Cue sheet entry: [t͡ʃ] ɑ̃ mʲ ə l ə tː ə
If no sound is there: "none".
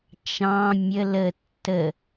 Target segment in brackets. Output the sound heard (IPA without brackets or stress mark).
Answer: t͡ʃ